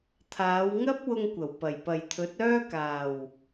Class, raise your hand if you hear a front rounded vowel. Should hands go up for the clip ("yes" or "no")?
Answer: yes